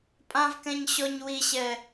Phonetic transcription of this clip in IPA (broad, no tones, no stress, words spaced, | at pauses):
pʼãvkɛ̃ɲ ɕɔɲ wiɕɛ